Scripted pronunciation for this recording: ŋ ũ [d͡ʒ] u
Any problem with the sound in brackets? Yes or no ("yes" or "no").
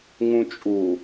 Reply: yes